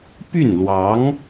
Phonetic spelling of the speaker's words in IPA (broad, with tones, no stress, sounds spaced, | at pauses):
p y˥˩ n l w ɑ˧˥ ŋ